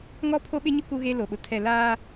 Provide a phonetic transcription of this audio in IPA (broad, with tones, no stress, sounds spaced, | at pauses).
ŋ ɔ˦ pʰ o˦ ɓ ɪ˦ ɲ ʊ˦ k u˦ ɣ e˦ l o˨ ɓ ʊ˨ tʰ ɛ˨ l aː˦